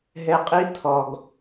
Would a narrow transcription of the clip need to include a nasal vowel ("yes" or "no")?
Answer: no